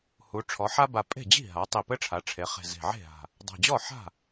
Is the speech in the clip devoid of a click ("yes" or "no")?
yes